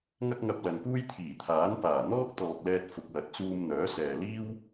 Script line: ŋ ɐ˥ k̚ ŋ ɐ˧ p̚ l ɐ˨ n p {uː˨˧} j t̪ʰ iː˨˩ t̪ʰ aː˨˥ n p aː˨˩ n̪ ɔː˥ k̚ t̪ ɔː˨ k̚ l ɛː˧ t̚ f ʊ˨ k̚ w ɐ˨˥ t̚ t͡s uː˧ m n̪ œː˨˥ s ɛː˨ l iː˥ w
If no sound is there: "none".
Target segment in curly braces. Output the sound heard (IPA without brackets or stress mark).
uː˥